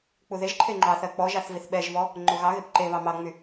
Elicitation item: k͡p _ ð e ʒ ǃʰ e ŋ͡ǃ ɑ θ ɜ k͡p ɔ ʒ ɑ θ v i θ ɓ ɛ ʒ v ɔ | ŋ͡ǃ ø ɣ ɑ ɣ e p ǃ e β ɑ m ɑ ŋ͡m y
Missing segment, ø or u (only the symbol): u